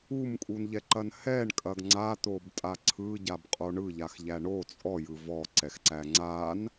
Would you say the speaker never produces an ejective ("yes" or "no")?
no